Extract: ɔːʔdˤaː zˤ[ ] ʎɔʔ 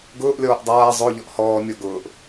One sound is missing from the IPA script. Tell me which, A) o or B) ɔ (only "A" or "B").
A